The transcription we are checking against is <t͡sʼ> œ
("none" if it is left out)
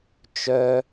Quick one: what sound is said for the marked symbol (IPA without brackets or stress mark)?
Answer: t͡ʃ